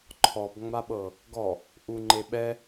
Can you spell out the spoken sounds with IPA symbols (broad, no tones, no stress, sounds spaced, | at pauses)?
ǃʰ ɔ b ŋ͡m a ɓ ɤ | ɡ ɔ | ʔ u ŋ͡ǃ e ɓ ɛ